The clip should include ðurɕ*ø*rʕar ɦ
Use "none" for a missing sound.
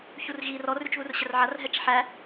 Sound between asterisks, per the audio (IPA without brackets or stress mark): ə